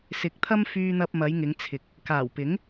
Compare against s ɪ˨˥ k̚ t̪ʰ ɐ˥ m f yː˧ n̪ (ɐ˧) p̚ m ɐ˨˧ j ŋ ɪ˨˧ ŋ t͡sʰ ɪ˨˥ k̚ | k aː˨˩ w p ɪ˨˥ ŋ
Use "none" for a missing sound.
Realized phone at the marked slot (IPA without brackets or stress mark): ɐ˧